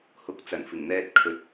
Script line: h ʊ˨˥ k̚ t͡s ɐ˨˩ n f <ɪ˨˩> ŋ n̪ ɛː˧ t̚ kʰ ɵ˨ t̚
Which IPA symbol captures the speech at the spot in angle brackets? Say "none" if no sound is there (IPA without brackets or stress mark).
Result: ɪ˨˩